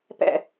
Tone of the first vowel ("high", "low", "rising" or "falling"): low